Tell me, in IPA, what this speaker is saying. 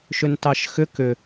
ʃ ʏ n t ɑ ʃ x ʏ k ʏ

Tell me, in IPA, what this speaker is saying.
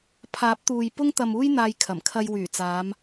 pʰ aː˨˥ p̚ t̪ uː˨ j p ʊ˧ ŋ t̪ ɐ˨ m uː˧ j n̪ aː˧ j kʰ ɐ˨˩ m kʰ ɐ˧ j w yː˨˩ t͡s aː˨˧ m

